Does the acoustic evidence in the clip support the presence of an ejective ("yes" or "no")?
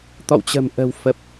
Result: no